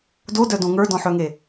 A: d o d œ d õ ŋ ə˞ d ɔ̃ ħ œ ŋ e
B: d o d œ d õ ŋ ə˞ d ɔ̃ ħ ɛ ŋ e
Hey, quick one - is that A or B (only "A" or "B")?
A